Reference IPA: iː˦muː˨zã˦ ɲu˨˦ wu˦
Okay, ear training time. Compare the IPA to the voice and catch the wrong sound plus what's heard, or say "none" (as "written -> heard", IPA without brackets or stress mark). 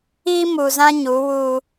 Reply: none